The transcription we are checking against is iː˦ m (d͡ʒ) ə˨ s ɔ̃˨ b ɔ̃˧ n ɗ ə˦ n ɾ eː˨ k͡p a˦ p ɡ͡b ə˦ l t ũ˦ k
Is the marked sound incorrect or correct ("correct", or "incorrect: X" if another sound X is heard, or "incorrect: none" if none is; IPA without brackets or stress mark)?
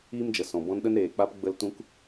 correct